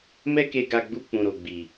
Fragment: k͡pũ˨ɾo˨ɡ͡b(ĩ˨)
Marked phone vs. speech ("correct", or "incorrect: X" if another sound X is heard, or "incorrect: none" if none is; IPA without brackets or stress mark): incorrect: i˨